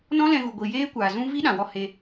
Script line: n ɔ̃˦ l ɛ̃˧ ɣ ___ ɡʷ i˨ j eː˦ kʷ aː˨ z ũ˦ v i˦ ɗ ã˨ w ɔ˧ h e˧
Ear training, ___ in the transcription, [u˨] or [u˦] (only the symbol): u˨